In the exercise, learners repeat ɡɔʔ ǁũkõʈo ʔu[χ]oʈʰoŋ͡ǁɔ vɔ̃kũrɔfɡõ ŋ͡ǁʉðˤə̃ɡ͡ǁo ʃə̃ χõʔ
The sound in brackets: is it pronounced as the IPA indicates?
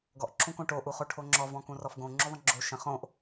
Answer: yes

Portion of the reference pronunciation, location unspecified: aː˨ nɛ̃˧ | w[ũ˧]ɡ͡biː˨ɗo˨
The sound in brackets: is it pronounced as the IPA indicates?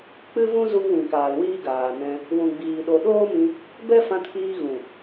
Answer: no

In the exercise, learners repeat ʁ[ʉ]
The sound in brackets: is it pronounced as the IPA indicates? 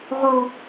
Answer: no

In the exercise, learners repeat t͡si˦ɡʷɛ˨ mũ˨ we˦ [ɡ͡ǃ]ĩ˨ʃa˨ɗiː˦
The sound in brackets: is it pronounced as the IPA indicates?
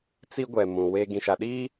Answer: no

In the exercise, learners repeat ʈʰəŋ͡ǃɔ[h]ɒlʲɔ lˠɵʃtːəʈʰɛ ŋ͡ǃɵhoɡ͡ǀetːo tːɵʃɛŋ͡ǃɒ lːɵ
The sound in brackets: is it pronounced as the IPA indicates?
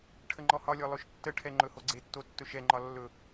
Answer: yes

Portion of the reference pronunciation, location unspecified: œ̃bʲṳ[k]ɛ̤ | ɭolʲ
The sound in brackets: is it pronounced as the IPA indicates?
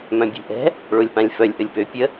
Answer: no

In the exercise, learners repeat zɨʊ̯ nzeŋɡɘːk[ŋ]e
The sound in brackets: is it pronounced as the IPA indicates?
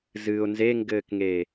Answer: yes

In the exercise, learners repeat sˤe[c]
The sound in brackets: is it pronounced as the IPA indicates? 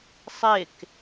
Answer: no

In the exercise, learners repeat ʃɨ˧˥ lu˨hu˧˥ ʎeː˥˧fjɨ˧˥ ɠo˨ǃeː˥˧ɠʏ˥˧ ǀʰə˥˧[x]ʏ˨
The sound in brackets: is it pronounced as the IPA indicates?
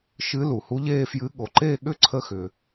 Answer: yes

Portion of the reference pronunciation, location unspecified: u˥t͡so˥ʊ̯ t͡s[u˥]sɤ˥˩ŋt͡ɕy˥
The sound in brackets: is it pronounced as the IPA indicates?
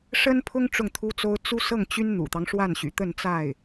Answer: yes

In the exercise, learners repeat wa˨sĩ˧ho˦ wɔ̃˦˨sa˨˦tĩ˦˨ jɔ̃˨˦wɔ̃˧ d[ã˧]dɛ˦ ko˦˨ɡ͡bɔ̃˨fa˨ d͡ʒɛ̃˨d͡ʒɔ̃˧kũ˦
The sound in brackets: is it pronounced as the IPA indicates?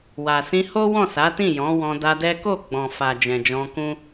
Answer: no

